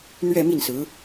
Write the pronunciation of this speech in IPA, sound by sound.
n̪ɥɛ˥˧mi˥˩nsɹ̩˧˥

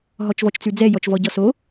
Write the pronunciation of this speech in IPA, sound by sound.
ɦɔt͡ʃvɔt͡ʃt͡sʉd͡zɛ jɔt͡ʃvɔɟɔso

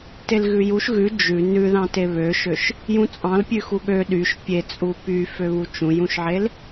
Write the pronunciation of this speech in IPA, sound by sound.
telɣʉjuʃ ɣʉ d͡ʒʉ nʉ ðɑ̃teβøʃøʃ | jũt͡sʼɑ̃lpʲʉ xuɠø ɗyʃ pʲet͡sʼu pyfø βut͡ʃũjũʃʕel

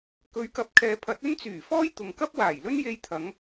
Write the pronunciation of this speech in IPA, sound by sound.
kɵ˨˧ɥkɐ˨˥p̚kʰɛː˨pʰɐ˨˥t̚ ɵ˥nt͡syː˨˩fɔː˥j t̪ʊ˨ŋkɐ˥p̚waː˨˩jlɵ˥n je˧jt̪ʰɐ˨˧ŋ

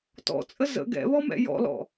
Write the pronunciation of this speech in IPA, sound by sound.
tɔ̰t͡sʼə zə̰ ɡɛ̰βɔmɛ̰ jɔ̰lɔ̰

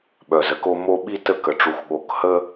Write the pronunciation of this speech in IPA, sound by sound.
ɓœ˨zə˦ko˦ mo˦ɓi˦tə˦˨k ə˨ʈ͡ʂu˨xɠo˨k hə˦

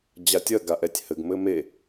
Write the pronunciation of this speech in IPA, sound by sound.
d͡ʑatʲɐ ɡaʔɛtʲhɘɡ mɘme

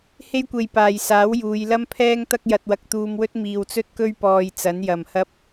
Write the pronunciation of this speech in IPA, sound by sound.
he˥jkʷe˧jpaː˨jsaː˨˥w juː˨˧jlɐ˥mpʰɛː˥ŋt̪ɐ˥k̚ jɐ˧t̚wɐ˧k̚t̪uː˧mwɵ˥t̚ miː˧wt͡sɵ˥t̚kɵ˥ɥ pɔː˧jt͡sɐ˨˥njɐ˨m hɐ˧p̚

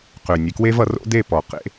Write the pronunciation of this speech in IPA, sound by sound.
qø˨nʲe˨kwe˦v ʌ˨˦ro̰˦de˦˨pɔ˨ qḛ˦

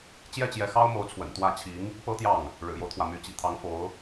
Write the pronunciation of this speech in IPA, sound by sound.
t͡ɕjɛ˥˩t͡ɕjɛ˧˥ xɑ˥ʊ̯mo˧˥ʊ̯t͡sʰwə̰˨˩n t̪wä˥˩ t͡ɕʰi˧˥ŋ | pɤ˥t̪jɑ˥˩ŋ | ɻɻ̩˨˩jo˦ʊ̯t̪ʰwä˩ my˧˥t͡ɕḭ˨˩t̪ʰɑ˧˥ŋfo˧˥ʊ̯

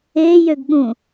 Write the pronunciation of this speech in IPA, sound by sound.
ejøɡ ɠũ

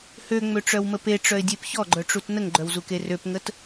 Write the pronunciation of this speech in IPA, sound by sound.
høŋ͡møʈ͡ʂœwmə peʈ͡ʂœɪ̯dʲep çɔɡ͡ǃœʈ͡ʂut nəŋɡ͡ǃœwzuke røpŋət

